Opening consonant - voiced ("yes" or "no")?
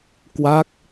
no